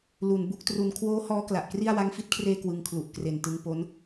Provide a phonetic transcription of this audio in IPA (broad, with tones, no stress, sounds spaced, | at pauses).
l u˩˦ n b u˦˥ k̚ t r u˧ n kʰ w oː˦˥ h ɔː˦˥ k l a˨˩ ʔ k r i˥˩ a̯ w a˧ ŋ f i˦˥ t̚ kʰ r eː˧ k w ɯ˦˥ ŋ kʰ l u˨˩ ʔ k r e˨˩ n t ɯ˧ ŋ p o˦˥ n